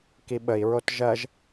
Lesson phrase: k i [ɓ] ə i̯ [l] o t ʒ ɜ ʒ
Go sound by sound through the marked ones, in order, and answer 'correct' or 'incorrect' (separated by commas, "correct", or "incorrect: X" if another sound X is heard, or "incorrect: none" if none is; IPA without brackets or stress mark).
correct, incorrect: ɹ